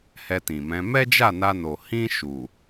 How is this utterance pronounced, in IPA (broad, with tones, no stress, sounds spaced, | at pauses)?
h ɛ˧ t ĩ˨ m ɛ̃˨˦ m ɛ˦ d͡ʒ a˦˨ n a˧ n o˨ h ĩ˧ ʃ u˨